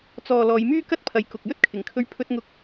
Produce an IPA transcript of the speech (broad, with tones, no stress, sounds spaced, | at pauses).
t͡s ɔː˨ l ɔː˨˧ j m yː˥ k ɐ˥ t̚ pʰ ɐ˨ j k ʊ˨ k̚ j ɵ˥ t̚ kʰ ɪ˨˩ ŋ kʰ ɵ˧ ɥ pʰ ɵ˧ t̚ ŋ ʊ˧ k̚